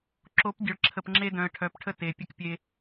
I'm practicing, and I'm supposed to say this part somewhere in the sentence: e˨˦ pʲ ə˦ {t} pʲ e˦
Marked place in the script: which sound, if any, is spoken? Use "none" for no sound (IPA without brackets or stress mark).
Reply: k